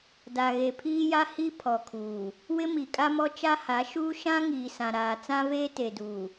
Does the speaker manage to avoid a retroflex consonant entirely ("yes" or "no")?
yes